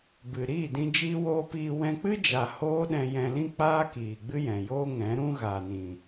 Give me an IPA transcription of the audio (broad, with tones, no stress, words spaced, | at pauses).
bɨ˨ ɾiː˦˨dĩ˧ d͡ʒiː˦woː˦ piː˧ wɛ̃˧k͡pɨ˦d͡ʒa˨ hoː˦ɗɛ̃˧jɛ̃˧lĩ˦ k͡paː˦ kiː˨ɡ͡bɨ˦jɛ̃˨ joː˦ŋɛ̃˨˦ɾũ˦ ɣaː˨nĩ˨